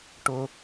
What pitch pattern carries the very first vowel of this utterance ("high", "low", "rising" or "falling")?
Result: high